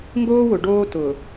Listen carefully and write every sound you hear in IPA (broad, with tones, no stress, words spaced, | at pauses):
ŋɡoː˦wʊ˨ɖoː˦ tʊː˨